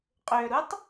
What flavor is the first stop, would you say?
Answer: ejective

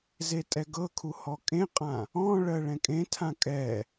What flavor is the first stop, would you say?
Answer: ejective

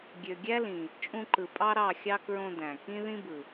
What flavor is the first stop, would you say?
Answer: plain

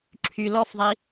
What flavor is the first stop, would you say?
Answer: click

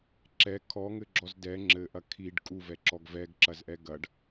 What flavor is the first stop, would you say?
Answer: click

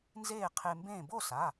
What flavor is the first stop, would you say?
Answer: aspirated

